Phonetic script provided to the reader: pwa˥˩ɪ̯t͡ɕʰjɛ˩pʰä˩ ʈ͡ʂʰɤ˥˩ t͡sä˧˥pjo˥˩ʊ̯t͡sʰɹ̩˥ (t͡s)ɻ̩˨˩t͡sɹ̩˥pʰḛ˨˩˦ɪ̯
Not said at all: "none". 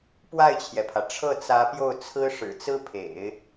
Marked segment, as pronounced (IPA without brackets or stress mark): ʂ